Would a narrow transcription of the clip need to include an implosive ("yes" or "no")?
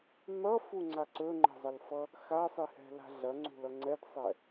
no